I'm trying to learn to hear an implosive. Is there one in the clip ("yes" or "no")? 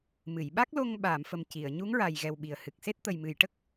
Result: yes